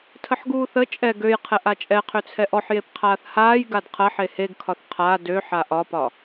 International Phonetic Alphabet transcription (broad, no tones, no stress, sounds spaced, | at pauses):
tʰ ə ħ ɡ uː θ ə t͡ʃʼ ɛ ɡ ø j qʰ ɛ ʔ a t͡ʃʼ ɛ qʰ ø t͡sʰ ɛ ʔ ɔ ħ j e p qʰ aː θ h aː j ɡ a d qʰ ɐ ħ e h e ɡ kʰ ɒ θ qʰ a d ø ħ a ʔ ɒ p ɒ